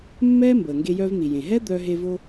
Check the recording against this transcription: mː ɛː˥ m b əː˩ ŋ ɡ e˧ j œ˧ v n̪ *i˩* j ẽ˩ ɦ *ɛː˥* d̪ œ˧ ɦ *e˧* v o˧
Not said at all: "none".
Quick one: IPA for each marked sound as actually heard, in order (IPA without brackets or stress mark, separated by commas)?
i˩, ɛ˥, e˧